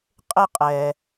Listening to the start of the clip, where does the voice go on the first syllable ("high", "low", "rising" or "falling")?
high